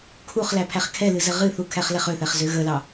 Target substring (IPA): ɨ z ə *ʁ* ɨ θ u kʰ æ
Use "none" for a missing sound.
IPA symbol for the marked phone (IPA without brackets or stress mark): ʁ